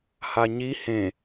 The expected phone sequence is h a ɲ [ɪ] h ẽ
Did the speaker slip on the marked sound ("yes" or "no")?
yes